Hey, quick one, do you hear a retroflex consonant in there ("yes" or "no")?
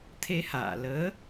no